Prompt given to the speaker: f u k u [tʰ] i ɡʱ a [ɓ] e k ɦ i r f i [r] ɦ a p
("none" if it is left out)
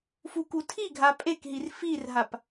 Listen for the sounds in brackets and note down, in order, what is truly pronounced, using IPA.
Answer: tʰ, pʼ, r

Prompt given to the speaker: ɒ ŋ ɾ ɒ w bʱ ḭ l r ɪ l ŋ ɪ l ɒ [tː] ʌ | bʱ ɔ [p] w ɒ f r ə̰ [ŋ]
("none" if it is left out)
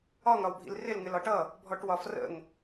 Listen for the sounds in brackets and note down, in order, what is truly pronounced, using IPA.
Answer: ʈ, ʈ, ŋ

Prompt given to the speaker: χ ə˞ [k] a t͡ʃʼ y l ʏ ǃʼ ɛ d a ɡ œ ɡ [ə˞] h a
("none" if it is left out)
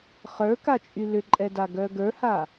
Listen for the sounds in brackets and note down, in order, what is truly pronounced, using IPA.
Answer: k, ə˞

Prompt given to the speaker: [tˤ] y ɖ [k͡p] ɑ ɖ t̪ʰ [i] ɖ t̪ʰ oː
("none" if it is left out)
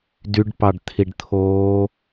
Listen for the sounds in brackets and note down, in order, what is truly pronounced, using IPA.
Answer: d, p, i

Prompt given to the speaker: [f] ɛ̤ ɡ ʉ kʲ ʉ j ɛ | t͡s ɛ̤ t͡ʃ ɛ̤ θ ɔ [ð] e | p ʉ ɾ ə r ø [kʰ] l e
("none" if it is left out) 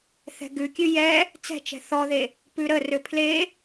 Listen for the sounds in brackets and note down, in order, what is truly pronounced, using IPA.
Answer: θ, ð, pʰ

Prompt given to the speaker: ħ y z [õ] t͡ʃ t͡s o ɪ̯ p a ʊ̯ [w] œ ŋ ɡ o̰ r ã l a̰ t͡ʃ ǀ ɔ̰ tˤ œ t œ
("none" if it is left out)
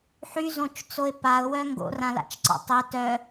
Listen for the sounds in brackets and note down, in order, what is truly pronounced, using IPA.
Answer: õ, w

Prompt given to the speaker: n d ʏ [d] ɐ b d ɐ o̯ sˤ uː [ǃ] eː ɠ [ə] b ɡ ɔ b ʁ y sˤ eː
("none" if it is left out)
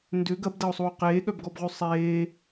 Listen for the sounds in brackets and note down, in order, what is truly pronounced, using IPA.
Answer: ɡ, q, œ

